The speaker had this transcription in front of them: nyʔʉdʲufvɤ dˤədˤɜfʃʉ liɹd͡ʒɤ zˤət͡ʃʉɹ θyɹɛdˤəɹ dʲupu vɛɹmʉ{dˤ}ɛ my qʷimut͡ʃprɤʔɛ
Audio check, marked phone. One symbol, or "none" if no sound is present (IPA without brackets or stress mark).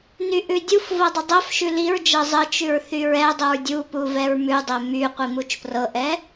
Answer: dˤ